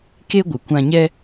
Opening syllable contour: high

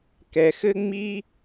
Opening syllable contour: low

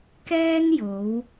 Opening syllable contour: high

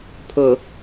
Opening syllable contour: low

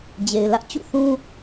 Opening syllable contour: low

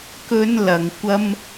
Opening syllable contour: high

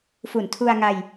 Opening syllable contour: low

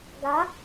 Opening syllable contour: rising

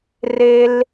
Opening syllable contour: high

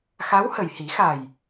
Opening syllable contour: rising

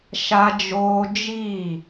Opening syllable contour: high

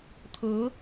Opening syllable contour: rising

